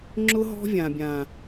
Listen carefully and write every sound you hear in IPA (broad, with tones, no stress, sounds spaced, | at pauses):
ŋ͡ǁ ʊ˦ ɦ ɔ̤˦ vʲ ã˨ bʲ ã˨